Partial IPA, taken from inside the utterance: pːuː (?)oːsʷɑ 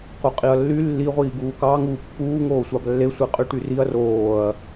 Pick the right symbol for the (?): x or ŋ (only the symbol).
ŋ